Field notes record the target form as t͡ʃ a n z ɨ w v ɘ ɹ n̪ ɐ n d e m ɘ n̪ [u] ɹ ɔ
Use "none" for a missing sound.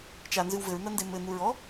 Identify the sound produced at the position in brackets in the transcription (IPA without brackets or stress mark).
u